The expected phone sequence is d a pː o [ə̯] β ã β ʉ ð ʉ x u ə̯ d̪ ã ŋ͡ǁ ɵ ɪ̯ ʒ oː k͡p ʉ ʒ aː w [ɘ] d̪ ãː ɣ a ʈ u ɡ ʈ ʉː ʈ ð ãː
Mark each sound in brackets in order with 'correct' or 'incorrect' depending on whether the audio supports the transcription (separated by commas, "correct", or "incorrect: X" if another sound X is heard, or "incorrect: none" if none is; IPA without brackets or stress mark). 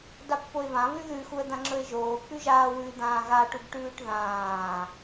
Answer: incorrect: ɪ̯, incorrect: ʉ